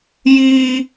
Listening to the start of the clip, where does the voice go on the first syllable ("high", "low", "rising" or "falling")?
high